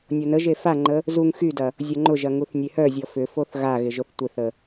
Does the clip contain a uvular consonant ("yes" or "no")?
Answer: no